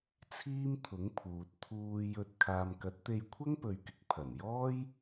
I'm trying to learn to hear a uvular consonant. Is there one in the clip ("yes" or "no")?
no